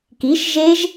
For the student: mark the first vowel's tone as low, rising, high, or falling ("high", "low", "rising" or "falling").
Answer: rising